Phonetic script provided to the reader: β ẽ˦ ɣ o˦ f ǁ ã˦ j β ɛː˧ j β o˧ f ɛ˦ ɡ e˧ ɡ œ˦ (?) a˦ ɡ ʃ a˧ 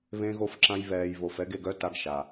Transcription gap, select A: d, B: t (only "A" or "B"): B